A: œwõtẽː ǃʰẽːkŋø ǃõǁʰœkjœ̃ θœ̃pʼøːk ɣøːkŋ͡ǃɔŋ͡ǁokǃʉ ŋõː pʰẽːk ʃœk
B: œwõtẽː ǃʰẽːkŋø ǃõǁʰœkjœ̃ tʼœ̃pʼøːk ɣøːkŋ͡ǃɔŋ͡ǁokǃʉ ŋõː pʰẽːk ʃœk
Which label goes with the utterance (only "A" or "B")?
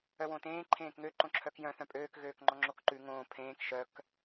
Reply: A